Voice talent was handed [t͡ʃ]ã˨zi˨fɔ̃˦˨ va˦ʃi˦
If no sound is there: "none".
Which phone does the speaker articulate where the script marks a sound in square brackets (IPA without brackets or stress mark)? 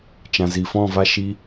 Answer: t͡ʃ